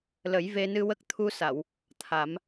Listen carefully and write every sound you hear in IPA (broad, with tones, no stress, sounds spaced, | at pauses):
l ə˨˩˦ j v e˧ n ɨ˧ w ə˦˥ k̚ t̪ʰ u˧ s a˨˩˨ w | t̪ʰ a˨˩˦ m